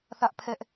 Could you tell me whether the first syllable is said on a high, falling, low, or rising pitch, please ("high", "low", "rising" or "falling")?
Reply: high